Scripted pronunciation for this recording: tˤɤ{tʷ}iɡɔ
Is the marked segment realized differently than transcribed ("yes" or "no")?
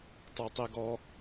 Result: yes